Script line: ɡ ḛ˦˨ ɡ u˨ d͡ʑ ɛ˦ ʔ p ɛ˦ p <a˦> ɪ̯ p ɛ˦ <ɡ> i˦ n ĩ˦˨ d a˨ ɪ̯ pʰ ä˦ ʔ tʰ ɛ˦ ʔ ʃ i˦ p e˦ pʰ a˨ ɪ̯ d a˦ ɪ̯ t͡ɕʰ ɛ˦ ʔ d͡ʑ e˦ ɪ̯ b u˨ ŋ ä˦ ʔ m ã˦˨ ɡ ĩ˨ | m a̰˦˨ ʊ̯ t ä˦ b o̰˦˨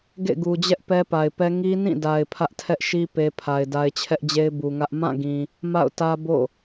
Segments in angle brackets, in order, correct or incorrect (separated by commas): incorrect, incorrect